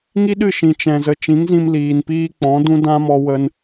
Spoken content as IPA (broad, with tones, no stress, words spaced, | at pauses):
ŋi˦ɗɨ˦˨ ʃĩ˨ t͡ʃɛ̃˧zə˧ t͡ʃĩ˨˦ŋzĩ˧mliː˨npiː˧ k͡pɔ̃˨˦dũ˦dã˦mɔ˧ wə˧n